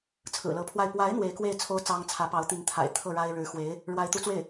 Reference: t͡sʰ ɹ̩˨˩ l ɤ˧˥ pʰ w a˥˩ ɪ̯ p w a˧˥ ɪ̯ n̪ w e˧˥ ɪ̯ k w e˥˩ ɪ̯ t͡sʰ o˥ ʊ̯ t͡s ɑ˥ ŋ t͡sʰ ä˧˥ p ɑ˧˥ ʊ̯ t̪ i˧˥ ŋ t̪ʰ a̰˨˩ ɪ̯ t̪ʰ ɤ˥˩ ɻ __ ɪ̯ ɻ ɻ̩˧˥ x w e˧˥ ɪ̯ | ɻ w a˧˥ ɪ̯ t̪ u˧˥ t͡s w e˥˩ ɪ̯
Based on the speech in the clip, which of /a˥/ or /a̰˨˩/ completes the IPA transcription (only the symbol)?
a˥